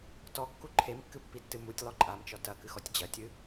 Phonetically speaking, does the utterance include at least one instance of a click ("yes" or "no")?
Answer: yes